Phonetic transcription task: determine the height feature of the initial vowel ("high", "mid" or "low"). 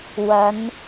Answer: low